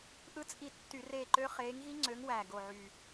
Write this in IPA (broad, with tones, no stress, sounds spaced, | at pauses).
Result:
ʔ ɯ˦˥ t͡sʼ i˦˨ tː y˧˩˧ r eː˦˨ ǃ ø˦˥ χ eː˨˦ ŋ ɣ i˦˥ ŋ͡ǀ ø˨˦ ŋ w æ˨˩ ɡ o˨˩ ʕ y˨˩